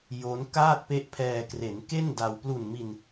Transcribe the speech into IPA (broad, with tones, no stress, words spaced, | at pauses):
jo˦˥n kaː˥˩t̚pe˦˥ʔpʰɛː˧ kre˩˦nke˥˩n da˧w plu˨˩nmi˧n